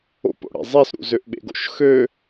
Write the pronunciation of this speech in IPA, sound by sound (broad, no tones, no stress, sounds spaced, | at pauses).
o̰ p o̰ ɽ ḛ zˤ e s ɾ ṵ z ø ʔ ɓ ḛ ɡ o̰ ʃ x ø